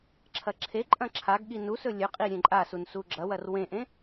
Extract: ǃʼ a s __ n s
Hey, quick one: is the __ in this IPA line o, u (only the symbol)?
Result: u